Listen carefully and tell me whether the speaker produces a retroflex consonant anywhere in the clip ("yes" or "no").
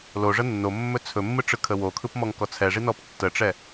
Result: yes